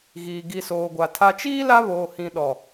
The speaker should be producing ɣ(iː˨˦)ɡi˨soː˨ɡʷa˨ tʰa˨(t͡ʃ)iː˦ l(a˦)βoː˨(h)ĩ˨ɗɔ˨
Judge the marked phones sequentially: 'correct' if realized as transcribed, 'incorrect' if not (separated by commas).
incorrect, correct, correct, correct